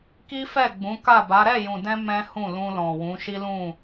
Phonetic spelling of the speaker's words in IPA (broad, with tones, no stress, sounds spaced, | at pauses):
k i˦ f ɛ˦˨ ɡ͡b ũ˨˦ k a˦˨ b a˨˦ ɾ ɛ˦˨ j ũ˨ d ɛ̃˧ m ɛ̃˦ h ũ˦˨ l ũ˧ l ɔ̃˨ w ũ˨˦ ʃ i˦ l ũ˦˨